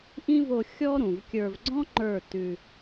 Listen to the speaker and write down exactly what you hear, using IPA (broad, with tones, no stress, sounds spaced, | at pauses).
ʔ ĩ˦ v o˧ xʲ ɔ˦ ɾ ũ˨ v kʲ ə˞˧ v ɡ͡ǀ ɔ̃˦ ŋ͡ǃ ə˞˦˨ t ʉ˧